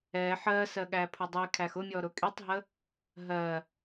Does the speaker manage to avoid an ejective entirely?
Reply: no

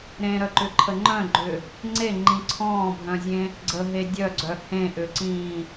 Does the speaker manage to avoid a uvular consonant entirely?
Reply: yes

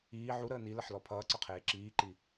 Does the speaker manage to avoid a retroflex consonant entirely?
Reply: yes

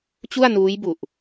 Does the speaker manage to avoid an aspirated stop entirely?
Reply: yes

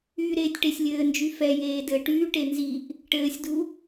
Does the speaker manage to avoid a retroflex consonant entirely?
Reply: no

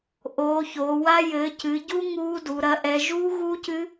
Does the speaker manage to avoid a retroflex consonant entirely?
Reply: yes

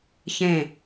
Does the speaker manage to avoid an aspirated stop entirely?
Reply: yes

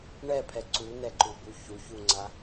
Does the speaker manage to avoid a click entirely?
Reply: no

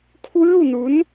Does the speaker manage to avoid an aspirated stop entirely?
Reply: no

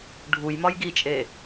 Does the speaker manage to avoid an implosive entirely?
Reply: yes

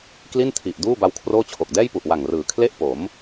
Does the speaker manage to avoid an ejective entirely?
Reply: yes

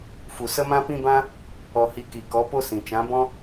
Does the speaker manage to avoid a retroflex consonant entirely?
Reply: yes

